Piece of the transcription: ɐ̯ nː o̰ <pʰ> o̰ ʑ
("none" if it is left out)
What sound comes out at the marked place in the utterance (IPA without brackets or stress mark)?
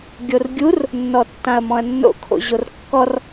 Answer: kʰ